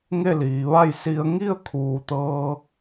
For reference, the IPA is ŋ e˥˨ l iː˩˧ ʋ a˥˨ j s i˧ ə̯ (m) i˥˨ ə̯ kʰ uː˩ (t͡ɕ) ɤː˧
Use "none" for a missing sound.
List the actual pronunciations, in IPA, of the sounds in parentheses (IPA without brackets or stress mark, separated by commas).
ŋ, t̪